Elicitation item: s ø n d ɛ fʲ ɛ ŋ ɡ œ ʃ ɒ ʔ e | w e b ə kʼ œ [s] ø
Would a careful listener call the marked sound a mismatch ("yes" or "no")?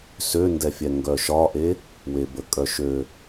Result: yes